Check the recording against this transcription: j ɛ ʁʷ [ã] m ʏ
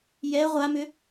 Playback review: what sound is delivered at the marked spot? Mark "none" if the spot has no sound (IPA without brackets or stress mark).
a